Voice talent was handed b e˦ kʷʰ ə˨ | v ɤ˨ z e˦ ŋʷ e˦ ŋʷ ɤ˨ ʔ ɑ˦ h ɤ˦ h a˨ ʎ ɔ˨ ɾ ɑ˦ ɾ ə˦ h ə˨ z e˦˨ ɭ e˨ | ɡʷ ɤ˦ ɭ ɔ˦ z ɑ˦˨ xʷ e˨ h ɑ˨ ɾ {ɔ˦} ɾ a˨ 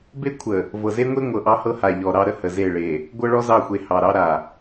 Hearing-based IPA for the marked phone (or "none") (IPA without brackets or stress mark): ɑ˦